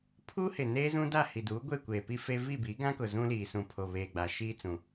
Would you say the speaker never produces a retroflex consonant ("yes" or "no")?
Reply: yes